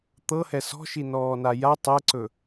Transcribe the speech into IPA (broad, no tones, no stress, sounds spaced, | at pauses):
t̪ ɤ h ɛ s ɔ̤ ʃ i n ɔː n a j a tˤ ɛ ǀ ɵ